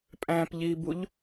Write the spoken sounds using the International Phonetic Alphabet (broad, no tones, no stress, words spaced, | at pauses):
pʼæ̃pʎibuʎ